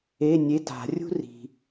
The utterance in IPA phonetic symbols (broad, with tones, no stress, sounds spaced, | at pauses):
e˧˥˧ nʲ e˧˥˧ t a̤˨˩˦ rʲ ṳ˥ r i̤˩